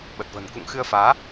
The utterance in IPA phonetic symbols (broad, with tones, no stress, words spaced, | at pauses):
ɓə˨˩t̚və̤˨˩n kṵ˧˨ŋxɨ˧ə̯faː˨˦